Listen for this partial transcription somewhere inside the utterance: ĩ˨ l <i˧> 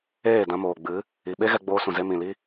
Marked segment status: incorrect: i˦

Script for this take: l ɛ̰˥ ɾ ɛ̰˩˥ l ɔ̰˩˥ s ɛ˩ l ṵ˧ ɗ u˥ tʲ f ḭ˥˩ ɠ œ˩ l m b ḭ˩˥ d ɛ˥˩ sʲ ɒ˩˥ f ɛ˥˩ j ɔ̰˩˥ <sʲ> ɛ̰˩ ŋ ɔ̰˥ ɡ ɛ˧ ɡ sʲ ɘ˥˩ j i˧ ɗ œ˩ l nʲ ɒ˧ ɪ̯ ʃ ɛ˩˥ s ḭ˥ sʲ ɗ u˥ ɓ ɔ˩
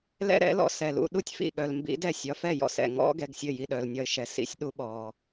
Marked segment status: incorrect: s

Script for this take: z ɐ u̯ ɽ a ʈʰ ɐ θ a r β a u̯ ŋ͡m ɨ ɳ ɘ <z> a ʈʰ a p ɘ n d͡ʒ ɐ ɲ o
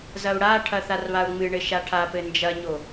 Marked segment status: incorrect: ʃ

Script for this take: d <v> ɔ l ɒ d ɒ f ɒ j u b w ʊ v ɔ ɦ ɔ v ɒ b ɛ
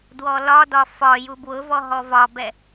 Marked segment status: incorrect: w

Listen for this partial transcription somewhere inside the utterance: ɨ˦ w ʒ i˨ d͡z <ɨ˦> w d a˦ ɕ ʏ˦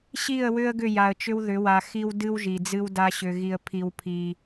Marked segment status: correct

